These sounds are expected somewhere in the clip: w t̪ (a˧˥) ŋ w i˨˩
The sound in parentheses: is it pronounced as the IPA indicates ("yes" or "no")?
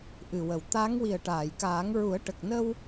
yes